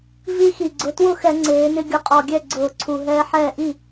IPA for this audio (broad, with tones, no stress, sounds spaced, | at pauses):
v i˦ x i˨˩ ɡ͡ǀ ʊ˨˦ t w ʊ˥˩ x ɛ˧˩˧ ŋ͡ǀ eː˨˦ n ɪ˦ ɡʲ ʊ˨˦ qʼ ɔ˨˩ ɡʲ ɛ˥˩ ɡ͡ǀ ʊː˧˩˧ ǀʰ u˨˩ ɦ ɛː˦ ħ ɛː˥˩ ʔ i˥˩